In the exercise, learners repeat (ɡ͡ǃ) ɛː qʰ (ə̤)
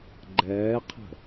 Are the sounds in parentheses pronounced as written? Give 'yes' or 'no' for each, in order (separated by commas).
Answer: yes, yes